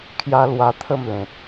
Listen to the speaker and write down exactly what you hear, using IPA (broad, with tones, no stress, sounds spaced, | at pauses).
kʰ j a˦ l w a˧ t̪ʰ ə˥˧ m l ẽ˨ t̚